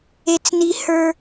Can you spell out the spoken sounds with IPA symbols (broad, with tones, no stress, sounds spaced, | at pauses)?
e˧ t͡s n i˧ h ə˞˧